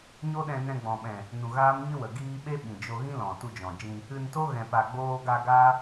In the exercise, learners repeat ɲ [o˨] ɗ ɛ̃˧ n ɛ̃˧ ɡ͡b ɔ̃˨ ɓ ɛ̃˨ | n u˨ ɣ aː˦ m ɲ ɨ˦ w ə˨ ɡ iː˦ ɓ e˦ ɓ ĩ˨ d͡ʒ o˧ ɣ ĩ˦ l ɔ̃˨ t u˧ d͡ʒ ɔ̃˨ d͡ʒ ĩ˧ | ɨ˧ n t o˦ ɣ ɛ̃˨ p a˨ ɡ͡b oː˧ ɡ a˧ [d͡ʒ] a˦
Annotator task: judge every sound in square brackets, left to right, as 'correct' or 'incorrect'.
incorrect, incorrect

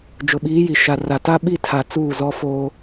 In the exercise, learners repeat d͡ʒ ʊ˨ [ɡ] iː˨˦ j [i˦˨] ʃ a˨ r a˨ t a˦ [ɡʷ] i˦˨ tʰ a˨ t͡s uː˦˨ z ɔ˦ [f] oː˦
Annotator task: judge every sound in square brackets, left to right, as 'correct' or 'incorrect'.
incorrect, incorrect, incorrect, correct

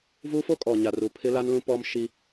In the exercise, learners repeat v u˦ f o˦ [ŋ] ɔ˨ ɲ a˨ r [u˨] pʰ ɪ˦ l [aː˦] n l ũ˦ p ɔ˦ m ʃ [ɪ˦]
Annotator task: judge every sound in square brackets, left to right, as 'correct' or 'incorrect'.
incorrect, correct, incorrect, incorrect

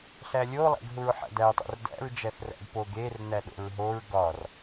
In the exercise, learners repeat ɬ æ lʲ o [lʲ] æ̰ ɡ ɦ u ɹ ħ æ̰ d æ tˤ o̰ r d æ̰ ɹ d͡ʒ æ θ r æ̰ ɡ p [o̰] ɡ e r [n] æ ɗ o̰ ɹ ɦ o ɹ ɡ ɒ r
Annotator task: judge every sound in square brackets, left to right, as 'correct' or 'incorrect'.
incorrect, incorrect, correct

